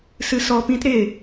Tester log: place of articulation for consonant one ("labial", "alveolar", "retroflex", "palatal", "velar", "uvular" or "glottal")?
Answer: alveolar